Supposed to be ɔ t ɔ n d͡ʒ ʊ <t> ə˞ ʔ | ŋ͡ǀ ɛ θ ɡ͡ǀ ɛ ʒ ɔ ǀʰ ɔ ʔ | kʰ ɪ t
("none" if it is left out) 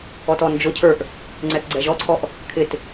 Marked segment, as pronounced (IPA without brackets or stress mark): cʰ